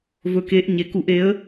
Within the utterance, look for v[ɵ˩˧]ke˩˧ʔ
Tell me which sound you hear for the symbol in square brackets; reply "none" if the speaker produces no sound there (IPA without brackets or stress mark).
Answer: ɵ˩˧